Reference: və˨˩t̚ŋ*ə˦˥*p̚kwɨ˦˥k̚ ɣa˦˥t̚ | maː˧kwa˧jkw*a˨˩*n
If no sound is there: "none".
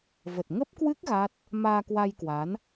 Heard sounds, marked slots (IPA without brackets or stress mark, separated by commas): ə˦˥, a˨˦